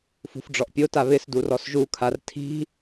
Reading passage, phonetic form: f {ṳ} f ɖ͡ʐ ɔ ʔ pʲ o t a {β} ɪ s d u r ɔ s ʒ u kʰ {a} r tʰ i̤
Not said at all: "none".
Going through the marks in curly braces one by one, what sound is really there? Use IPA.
ṳ, β, a

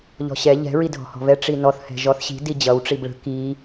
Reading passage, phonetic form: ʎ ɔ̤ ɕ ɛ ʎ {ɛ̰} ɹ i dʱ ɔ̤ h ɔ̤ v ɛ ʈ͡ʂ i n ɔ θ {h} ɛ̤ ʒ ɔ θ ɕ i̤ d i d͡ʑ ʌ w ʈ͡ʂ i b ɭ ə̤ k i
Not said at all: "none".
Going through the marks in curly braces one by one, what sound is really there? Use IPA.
ɛ̤, h

